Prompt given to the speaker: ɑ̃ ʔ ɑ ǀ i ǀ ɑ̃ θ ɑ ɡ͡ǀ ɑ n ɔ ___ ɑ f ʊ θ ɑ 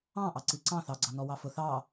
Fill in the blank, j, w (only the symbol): w